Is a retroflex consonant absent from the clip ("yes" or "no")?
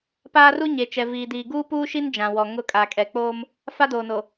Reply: yes